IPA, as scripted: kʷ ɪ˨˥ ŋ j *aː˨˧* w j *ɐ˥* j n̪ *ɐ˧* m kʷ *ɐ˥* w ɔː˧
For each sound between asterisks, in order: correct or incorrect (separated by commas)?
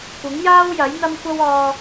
incorrect, incorrect, incorrect, correct